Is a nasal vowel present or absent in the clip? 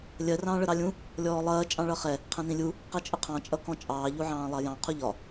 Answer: present